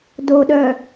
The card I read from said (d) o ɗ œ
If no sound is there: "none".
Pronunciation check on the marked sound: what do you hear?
d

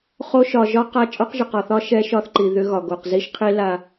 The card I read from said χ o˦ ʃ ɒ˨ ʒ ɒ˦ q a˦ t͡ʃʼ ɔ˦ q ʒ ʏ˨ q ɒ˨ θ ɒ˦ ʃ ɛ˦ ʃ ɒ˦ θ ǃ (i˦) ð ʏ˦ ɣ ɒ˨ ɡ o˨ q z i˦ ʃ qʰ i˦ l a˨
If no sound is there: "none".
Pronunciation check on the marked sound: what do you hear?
i˨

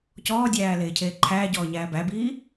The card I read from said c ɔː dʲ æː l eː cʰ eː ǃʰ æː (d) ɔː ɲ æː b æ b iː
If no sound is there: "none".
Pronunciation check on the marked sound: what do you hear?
ɟ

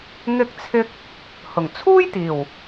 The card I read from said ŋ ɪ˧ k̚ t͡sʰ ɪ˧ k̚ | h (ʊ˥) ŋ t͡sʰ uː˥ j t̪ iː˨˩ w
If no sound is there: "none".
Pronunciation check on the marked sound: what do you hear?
ʊ˨˩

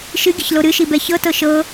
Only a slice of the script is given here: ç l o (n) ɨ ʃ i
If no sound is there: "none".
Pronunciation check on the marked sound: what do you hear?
ɾ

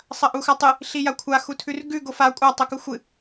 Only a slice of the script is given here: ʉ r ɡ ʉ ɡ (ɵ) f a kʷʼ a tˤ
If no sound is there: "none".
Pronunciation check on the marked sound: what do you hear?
o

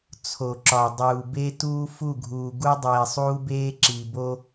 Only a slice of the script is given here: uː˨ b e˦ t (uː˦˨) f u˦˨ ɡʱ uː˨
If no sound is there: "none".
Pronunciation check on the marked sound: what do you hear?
uː˦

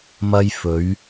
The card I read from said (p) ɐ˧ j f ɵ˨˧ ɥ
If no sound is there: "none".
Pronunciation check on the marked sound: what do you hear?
m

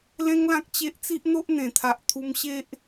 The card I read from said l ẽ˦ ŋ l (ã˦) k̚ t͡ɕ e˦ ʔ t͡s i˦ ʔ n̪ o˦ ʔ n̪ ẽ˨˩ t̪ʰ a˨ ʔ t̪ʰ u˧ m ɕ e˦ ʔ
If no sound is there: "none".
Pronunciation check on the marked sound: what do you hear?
ã˦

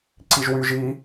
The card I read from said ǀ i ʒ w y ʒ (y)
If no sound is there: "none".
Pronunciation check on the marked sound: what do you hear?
i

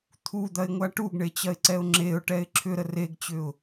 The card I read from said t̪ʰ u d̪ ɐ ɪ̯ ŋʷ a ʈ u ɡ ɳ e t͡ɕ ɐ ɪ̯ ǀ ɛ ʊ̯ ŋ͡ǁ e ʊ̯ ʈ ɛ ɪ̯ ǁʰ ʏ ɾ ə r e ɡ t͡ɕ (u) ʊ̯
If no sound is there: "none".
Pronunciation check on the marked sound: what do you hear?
ʏ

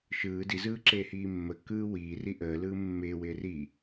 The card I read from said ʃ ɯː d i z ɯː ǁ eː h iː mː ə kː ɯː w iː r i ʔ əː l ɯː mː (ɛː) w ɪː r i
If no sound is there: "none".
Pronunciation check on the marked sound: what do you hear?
ɪː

